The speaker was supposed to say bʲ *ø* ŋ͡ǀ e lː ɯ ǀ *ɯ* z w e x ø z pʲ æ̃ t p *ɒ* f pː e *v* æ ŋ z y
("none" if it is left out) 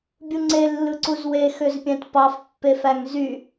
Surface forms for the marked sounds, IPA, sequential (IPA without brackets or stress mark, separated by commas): u, u, ɑ, f